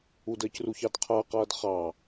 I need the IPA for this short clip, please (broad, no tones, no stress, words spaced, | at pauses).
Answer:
udəːcruçɑd qʰʌːqʌːd χɑ